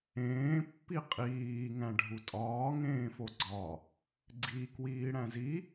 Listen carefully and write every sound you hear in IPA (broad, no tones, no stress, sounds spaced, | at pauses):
ẽː pː i qʼ iː ŋ æ̃ ɖʱ u tʼ ɒː ŋ ẽː f o ɡ͡ǀ ɒ | ɡ͡ǀ i k w iː ɽ æ̃ z i